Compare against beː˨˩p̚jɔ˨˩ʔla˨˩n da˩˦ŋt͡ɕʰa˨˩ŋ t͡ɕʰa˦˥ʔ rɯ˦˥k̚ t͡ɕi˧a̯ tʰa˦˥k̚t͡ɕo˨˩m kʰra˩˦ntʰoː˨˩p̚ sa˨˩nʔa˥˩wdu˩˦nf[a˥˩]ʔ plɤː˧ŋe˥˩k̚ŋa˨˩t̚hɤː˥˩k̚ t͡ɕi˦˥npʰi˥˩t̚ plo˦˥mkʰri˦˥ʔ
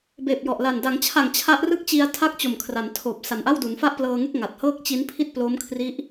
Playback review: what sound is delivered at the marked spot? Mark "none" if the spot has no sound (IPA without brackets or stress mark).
a˥˩